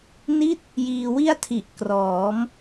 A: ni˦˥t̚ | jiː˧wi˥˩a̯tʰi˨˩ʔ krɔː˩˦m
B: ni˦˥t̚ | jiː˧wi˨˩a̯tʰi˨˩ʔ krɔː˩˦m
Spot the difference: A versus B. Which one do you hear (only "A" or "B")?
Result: A